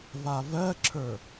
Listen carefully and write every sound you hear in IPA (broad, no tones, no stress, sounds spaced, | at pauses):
v a v ɜ ǁʰ ə˞